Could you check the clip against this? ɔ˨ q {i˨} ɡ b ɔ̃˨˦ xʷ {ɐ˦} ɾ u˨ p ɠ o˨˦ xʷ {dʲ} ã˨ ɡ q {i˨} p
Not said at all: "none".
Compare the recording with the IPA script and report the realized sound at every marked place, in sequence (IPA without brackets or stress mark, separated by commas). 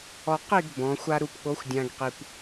i˦˨, a˦, dʲ, i˨